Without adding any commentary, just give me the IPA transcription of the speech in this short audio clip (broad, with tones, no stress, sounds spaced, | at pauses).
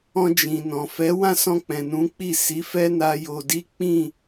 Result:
ɔ̃˧ d͡ʒ ĩ˨ n ɔ̃˨ f ɛ˨˦ w ã˦˨ s ɔ̃˧ k͡p ɛ̃˨ n ũ˨˦ k͡p i˦˨ s i˨˦ f ɛ˦ n a˧ j o˨ d i˨˦ k͡p ĩ˦˨